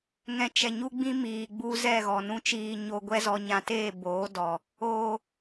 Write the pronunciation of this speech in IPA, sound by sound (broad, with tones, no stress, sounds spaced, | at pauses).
ŋ ɛ̃˨ t͡ʃ ɛ˨ ɲ u˦ ɡ͡b ĩ˦ m iː˨ ɡ͡b u˦ z ɛ˦˨ ɣ ɔ˨ n ũ˦ t͡ʃ iː˧ ɲ o˧ ɡʷ ɛ˦ z ɔ˧ ɲ ã˧ t eː˦˨ b oː˨˦ d ɔ˨ | oː˨